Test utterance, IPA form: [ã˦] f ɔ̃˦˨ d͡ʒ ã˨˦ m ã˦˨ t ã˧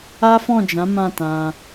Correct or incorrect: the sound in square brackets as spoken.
incorrect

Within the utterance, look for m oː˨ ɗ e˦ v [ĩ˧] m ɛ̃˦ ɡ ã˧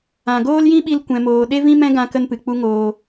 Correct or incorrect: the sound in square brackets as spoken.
incorrect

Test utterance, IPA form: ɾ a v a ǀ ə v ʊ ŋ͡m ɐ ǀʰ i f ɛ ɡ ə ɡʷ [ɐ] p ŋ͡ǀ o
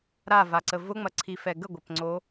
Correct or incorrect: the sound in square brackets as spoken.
correct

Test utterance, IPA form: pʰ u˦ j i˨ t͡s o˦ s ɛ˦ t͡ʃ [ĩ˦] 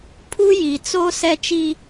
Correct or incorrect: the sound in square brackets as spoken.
incorrect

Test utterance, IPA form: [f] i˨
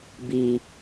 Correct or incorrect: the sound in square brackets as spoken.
incorrect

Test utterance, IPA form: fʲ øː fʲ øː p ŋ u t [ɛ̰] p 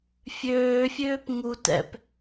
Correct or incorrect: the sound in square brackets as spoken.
correct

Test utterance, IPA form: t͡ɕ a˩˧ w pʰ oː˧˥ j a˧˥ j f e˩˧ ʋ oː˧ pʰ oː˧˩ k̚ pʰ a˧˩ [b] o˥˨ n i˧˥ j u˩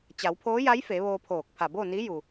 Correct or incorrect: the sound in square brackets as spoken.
correct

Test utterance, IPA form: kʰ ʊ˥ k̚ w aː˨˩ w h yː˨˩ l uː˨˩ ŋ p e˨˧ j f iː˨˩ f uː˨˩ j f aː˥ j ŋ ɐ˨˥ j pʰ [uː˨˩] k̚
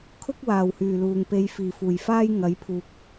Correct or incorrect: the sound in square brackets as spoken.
incorrect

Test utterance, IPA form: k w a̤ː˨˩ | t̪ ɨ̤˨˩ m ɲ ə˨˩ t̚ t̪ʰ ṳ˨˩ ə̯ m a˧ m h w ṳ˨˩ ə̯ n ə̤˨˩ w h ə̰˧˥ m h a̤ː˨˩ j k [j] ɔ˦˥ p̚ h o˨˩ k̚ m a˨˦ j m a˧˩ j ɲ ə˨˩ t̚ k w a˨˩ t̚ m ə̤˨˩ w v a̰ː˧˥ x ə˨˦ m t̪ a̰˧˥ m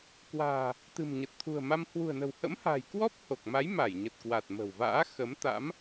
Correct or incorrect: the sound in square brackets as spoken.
incorrect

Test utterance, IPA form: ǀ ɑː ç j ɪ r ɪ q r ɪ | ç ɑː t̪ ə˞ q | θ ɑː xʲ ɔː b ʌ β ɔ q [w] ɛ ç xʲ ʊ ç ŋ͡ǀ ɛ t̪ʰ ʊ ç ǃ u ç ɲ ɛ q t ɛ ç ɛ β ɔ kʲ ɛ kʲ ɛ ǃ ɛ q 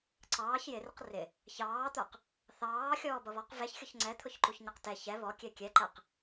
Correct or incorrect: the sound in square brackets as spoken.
incorrect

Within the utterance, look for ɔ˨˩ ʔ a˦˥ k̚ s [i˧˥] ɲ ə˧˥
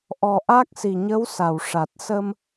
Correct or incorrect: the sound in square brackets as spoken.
incorrect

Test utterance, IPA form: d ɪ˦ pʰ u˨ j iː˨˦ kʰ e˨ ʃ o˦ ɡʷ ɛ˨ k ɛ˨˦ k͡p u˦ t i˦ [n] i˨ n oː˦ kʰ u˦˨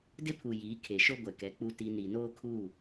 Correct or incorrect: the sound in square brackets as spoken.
correct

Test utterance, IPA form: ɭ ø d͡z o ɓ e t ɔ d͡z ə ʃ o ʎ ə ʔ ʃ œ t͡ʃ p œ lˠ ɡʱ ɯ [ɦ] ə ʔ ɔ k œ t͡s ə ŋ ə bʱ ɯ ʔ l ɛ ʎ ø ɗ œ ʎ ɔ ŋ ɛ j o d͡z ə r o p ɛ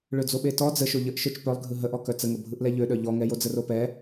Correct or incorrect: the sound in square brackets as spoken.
correct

